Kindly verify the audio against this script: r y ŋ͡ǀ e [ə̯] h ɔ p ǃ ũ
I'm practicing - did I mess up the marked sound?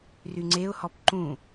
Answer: yes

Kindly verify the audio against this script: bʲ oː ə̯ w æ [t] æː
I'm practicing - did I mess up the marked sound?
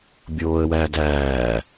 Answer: yes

